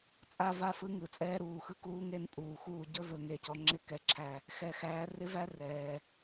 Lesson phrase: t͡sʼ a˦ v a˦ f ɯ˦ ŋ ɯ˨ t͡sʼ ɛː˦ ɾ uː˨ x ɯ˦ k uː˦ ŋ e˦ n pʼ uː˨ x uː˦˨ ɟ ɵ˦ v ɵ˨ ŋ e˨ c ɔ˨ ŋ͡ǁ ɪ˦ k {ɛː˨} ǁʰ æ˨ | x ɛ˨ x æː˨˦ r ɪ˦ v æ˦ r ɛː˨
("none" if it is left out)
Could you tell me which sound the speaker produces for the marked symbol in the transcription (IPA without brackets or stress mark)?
ɛ˨